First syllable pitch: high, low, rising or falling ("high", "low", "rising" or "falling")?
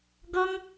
high